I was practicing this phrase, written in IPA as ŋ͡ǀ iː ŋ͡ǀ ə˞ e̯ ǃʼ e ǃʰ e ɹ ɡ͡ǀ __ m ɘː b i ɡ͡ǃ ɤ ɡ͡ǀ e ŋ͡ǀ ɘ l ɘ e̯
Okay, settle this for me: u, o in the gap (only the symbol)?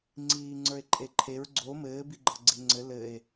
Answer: o